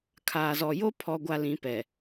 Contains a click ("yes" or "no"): no